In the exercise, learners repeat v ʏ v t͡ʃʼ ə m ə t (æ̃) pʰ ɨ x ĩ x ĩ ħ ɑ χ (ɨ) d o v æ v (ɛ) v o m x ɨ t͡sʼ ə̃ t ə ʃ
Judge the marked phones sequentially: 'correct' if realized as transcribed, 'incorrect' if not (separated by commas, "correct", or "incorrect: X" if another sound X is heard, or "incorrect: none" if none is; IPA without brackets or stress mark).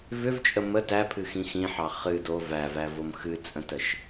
incorrect: æ, correct, incorrect: æ